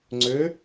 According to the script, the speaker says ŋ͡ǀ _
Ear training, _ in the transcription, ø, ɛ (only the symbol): ø